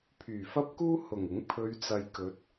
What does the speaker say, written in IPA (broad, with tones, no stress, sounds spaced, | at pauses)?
pʰ yː˨˩ f ɐ˥ p̚ k uː˥ h ʊ˨˩ ŋ ɪ˨˥ ŋ pʰ ɵ˨˧ ɥ t͡s ɐ˨ j k ɵ˨˥ t̚